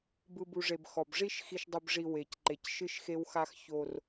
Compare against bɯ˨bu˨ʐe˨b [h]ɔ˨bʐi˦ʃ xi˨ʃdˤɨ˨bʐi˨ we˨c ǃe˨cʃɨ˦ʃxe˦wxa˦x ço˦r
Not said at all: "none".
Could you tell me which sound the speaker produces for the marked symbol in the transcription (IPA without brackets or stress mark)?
x